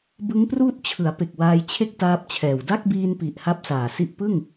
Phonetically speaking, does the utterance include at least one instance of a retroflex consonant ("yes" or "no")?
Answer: no